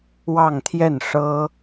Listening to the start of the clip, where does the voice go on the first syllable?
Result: falling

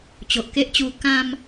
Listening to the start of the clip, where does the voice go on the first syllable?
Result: low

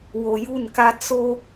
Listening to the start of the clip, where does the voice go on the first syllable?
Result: low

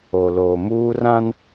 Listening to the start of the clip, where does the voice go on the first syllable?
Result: low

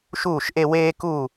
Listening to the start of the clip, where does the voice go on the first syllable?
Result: falling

